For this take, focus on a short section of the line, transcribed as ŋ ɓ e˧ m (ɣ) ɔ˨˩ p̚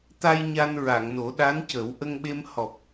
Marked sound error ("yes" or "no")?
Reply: yes